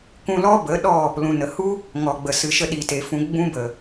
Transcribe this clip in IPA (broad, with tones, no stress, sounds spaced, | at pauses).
k ũ˧ l ɔ˦ b ə˨˦ ɗ ɔ˦˨ | l ũ˨ n ə˨ h u˦ | ŋ ɔ˨ ɡ͡b ə˨ s ɨ˨ ʃ ə˧ ɗ i˨ t e˨ f ũ˧ ɡ͡b ũ˧ b ə˨